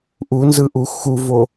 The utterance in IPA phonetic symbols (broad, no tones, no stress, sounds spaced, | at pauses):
ʔ u n z ɯ ʔ u x u v o